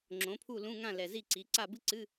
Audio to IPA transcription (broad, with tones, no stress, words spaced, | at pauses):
ŋ͡ǁõ˩˥pʰu˥˨lũ˧˥˧ŋã˥˨ lɛ˨˩zi˥˨ ǀi˩˥ ǀa˥˨bɨ˥ ǀɨ˧˥˧